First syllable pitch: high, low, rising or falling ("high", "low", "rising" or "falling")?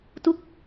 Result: falling